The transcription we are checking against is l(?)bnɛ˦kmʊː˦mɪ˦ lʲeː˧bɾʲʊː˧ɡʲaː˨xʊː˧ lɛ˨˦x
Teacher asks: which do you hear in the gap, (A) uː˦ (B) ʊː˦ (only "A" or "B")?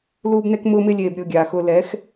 A